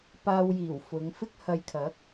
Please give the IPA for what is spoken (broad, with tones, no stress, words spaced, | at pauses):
paː˧wjiː˨˩w fʊ˨˧ŋ fɪ˥k̚hɐ˧jkʰɐ˨˥k̚